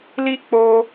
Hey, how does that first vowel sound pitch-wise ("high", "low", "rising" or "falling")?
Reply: high